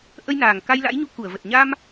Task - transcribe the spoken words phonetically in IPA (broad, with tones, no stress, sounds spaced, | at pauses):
ʔ ə˧ j n aː˨˩ ŋ k a˧ j l a̰˧˥ j ɲ u˧ k u˧˩ ə̯ v ə˨˩ t̚ ɲ a˧ m